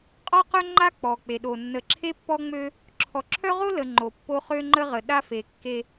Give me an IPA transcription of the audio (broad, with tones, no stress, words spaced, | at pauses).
qʼɔ˦qœ˦ŋ͡ǃa˦ k͡pɔ˨ k͡pe˨ɗo˨ nːə˨ǁʰe˦pːɔ˦ŋ͡mø˦ | ǁʰɔ˨ǁʰœ˦ʁo˦lə˨ ŋ͡ǃo˨pːo˦χø˦ŋ͡ǃə˦ ʁə˨ ɗa˦fe˨kːe˦